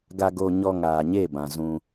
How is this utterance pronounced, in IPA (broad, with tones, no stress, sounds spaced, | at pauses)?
ɡ a˧ ɡ o˧ ɲ ɔ˧ ŋ aː˨ ɲ e˦˨ b ã˨ z ũ˧